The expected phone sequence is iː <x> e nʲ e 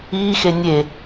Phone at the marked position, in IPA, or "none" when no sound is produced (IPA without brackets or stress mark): x